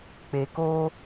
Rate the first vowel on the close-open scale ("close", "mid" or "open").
mid